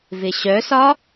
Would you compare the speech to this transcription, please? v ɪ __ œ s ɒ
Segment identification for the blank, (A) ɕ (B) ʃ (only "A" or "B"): A